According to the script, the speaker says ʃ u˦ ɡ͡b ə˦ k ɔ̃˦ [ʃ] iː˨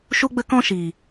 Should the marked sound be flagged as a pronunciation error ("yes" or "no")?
no